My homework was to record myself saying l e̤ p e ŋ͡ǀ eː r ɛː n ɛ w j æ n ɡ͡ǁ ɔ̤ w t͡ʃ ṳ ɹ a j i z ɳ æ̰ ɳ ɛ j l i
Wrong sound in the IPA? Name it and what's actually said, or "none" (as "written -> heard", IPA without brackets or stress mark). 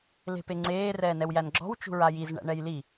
none